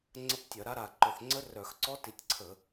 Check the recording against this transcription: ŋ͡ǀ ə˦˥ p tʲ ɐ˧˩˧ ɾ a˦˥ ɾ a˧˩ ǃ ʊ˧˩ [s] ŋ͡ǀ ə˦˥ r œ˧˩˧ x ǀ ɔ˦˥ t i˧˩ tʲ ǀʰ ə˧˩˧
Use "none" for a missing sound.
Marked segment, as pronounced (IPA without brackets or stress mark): θ